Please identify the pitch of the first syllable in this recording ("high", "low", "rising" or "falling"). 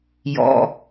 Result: low